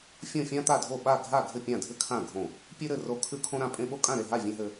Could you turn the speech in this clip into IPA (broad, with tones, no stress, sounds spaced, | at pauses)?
fʲ õ˥˨ fʲ ã˥ t̪ a˥˨ dʱ o˥˨ ɓ a˥˨ ɡʱ a˥˨ ɡʱ ɘ˥˨ pʲ ã˥˨ dʱ ɘ˥ kʰ ã˥˨ ɡʱ õ˥˨ | pʲ ʉ˥ ɾ ɘ˥˨ r o˥˨ kʰ ʉ˥ kʰ õ˥ ɾ ã˥˨ pʼ ẽ˥ ɓ o˥ kʼ ã˥˨ ɾ e˥˨ ɦ a˥˨ vʲ ẽ˥ ɦ ɘ˥